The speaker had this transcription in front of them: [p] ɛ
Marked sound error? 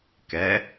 yes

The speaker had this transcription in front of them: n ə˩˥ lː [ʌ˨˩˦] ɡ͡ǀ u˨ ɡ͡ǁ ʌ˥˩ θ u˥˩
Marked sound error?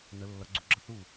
no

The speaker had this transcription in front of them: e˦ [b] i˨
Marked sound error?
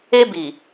no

